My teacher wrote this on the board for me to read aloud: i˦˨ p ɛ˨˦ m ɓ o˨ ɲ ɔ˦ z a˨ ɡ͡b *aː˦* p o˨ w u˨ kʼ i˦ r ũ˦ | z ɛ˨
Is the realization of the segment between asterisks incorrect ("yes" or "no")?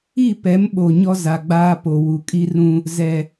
no